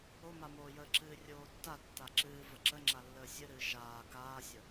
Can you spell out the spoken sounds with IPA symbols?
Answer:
o m a m oː j əː ǁ ɨː rʲ oː tː a tː a ǁ ɨː v ə ǁ ə ŋ͡ǁ a lː əː sʲ ɨ ɾ ɨː ʃ aː k aː sʲ ə

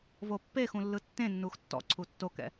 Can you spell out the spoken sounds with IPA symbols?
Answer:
v o pː e x ũ lː ɯ tː ẽ nː u x tː ɔ̰ ǀʰ u tː o k ɛ̰

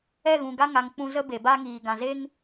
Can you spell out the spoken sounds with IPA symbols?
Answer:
ɛ˦˨ ɣ ũ˨ ɡ a˧ ŋ a˨ ŋ k͡p ũ˧ z ə˦ b e˨ b a˦ ŋ iː˨ ɡ ã˨ z e˦ ŋ

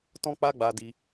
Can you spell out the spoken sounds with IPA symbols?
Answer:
t ɔ̃˦ k͡p a˦ ɡ͡b a˧ d i˧

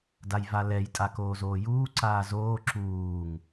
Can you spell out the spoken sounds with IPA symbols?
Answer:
d a j v a l ɛ j tʼ a k oː z oː j uː ǀ aː z oː ǁ uː ŋ

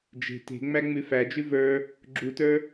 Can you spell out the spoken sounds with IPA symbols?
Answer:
d͡ʒ e̤ t e̤ ŋ͡m æ ŋ͡m ʉ f æ d͡ʒ ʉ v ə˞ | ɡ͡ǁ u t ə˞

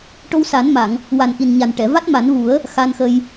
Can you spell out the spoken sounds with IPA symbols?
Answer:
ʈ o˧ w s a˨˩˦ n m a˨˩˨ ŋ | w a˨˩ n ʔ i˨˩ n ɲ a˨˩ n ʈ ɛ˨˩˨ v a˦˥ t̚ m a˨˩˦ n v u˨˩˦ ə̯ | x a˧ n x ə˧ j

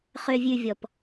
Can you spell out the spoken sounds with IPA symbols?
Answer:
χ ø˨ vʲ ʉ˨ vʲ ɔ˨ p

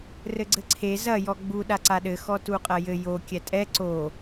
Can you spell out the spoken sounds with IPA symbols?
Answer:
r ɘ ɡ͡ǀ ɘ ǀʰ e z ɐ j ɔ ɡ͡b u ɗ a ǀ a ɗ ɘ x ɔ t u qʼ ɐ j ɘ j o kʲ ɛ tʼ ɛ ǀ o

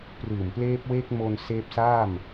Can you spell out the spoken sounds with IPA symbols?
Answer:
p r ɯː˨˩ m p l eː˦˥ p̚ w eː˦˥ k̚ m o˧ n s eː˦˥ p̚ s aː˥˩ m

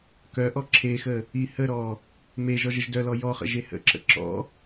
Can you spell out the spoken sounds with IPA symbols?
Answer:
k œ ʔ ɔ ǁʰ e x ə | i h ə ɾ ɔ | m e ʒ ɔ ʒ ə ʒ d œ l ɔ j ɔ χ ə̰ ʒ e h ə̰ ǁ ə̰ ǁ ɔ̰

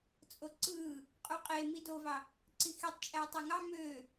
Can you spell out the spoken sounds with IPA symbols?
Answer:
t͡sʼ o ǀ ɯː | qʼ u qʼ e m i d o v ɑ | ǀ i x i tˤ t͡ʃʼ æ tˤ e ŋ ɑ m øː

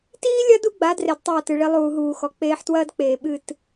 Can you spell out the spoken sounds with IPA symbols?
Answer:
t iː˦ lʲ ɐ˦ d u˦ ɡ͡b a˨˦ d r e˨ d tˤ ɐː˦˨ t ɨ˨ ɭ i˦ lˠ uː˨ ɦ uː˨ x ɔ˨ k͡p eː˦ ħ t w ɐː˦ d k͡p eː˨ ɓ ɨ˦˨ t

